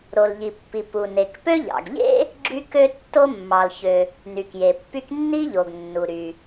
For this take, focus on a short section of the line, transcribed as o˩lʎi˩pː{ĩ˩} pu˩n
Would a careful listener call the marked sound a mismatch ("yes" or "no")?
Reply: yes